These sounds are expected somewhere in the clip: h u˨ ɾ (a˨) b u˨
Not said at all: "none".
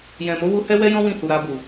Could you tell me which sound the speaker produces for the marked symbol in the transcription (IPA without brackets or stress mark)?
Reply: a˧